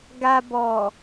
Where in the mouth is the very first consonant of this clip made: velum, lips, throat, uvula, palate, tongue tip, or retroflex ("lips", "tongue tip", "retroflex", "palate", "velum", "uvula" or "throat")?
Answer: velum